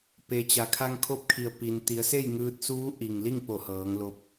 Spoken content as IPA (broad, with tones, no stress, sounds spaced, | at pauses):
p e˩ t͡ɕ a˩˧ kʰ a˧ ŋ kʰ o˧ p̚ kʰ i˩ ə̯ p i˩ n t̪ i˩˧ ə̯ s e˥˨ j ŋ ɯː˧ t̚ s uː˧˥ ʔ i˩ ŋ l i˥˨ ŋ p o˧˩ h ɤː˩˧ ŋ l o˧ p̚